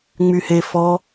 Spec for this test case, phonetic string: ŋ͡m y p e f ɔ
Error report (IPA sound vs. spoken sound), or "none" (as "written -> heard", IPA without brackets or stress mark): p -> h